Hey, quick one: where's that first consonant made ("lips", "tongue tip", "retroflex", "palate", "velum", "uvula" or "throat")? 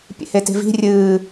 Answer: lips